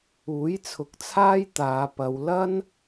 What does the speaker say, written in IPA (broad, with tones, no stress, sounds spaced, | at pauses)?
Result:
uː˨˥ j t͡sʰ ʊ˨˥ k̚ t͡sʰ aː˥ j t̪ aː˨˧ p ɐ˨˧ w l ɐ˥ n